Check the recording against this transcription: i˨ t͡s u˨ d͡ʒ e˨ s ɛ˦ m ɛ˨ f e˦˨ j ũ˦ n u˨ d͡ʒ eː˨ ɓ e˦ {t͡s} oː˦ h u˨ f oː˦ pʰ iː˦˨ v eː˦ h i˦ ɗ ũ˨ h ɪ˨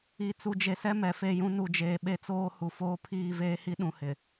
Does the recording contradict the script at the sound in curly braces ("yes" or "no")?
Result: no